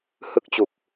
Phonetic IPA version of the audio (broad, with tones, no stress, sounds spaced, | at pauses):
h ɯ˦˥ k̚ t͡ɕ u˨˩ k̚